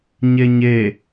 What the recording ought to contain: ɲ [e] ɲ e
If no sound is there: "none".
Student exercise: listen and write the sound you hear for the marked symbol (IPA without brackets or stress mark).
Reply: e